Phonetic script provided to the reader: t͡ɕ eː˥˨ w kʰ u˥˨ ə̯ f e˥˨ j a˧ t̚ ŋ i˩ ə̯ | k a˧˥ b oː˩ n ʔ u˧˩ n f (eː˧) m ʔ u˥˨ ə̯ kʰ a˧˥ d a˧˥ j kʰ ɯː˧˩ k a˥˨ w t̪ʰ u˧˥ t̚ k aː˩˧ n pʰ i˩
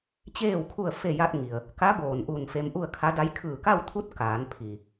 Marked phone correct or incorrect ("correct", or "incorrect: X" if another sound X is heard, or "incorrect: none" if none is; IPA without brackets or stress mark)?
incorrect: e˧